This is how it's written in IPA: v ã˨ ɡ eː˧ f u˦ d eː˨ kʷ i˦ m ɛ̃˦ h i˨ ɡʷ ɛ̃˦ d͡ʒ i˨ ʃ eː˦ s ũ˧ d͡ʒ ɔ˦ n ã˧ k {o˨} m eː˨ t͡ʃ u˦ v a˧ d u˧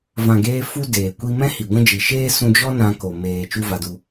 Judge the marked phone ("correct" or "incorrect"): correct